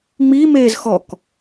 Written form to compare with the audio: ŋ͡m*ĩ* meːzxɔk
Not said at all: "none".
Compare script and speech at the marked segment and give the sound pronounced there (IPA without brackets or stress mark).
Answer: i